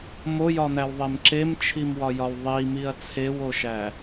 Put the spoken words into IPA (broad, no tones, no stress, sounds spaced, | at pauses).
m o j ɒ n̪ æ w ðˤ e m ǁ e m t͡ʃʰ i m w ɒ j ɒ w ðˤ i m i ɐ̯ t͡sʰ e w o ʃ æ